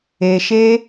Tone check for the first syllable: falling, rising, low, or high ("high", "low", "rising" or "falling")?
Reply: low